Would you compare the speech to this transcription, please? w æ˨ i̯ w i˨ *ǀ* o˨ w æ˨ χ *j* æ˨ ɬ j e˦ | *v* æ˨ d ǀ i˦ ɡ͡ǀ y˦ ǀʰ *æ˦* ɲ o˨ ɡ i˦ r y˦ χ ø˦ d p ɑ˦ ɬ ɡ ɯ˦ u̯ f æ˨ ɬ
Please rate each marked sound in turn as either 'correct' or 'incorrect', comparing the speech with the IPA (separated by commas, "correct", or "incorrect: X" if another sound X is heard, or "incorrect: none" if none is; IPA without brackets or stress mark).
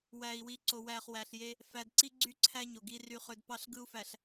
correct, incorrect: w, incorrect: f, correct